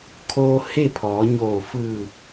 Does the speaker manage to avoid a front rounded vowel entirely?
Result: yes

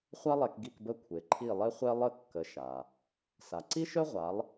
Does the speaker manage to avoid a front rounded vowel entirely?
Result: no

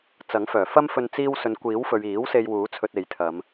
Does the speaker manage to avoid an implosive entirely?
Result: yes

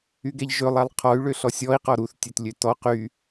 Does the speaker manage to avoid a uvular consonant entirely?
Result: no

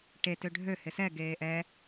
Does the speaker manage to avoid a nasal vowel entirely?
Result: yes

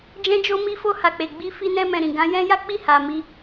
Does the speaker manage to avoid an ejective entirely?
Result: yes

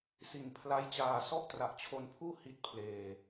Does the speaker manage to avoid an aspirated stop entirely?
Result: no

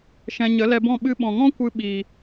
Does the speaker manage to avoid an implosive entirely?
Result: no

